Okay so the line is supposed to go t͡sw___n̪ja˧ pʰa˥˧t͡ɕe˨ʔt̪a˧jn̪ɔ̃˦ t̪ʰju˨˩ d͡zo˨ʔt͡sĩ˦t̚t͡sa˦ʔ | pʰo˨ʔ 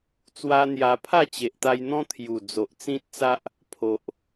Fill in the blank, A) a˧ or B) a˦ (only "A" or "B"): B